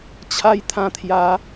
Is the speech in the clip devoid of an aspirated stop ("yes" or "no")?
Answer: no